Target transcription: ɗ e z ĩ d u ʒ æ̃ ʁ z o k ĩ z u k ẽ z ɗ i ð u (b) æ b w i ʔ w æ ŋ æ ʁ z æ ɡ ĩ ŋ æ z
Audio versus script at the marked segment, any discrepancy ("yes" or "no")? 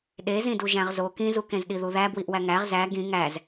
yes